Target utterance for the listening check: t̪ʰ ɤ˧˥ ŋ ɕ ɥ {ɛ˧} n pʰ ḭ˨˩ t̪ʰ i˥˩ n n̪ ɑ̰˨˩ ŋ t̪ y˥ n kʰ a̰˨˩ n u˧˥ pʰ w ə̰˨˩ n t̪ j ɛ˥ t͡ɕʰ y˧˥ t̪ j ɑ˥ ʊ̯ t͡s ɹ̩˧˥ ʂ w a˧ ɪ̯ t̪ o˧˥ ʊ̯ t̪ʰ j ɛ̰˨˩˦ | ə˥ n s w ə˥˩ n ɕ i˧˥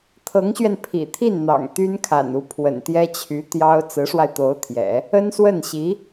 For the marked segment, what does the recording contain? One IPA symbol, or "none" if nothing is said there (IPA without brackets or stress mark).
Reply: ɛ˧